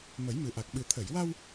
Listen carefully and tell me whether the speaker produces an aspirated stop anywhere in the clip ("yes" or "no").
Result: yes